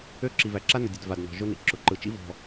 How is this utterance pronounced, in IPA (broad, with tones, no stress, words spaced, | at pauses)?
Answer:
ø˦ ǁi˨væ˨ǁa˦ nʊ˨dʲʊ˨d va˨dnɔ̤˨ ʒʊ˦nḭ˨ ǁʊ˨ǃɯ˨t͡ʃḭ˦ vɔ̤˨